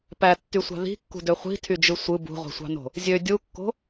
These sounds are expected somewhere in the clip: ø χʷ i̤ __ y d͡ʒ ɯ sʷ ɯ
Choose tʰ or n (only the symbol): tʰ